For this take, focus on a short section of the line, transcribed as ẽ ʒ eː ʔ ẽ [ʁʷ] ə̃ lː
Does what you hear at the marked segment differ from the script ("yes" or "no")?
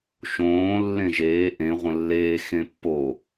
no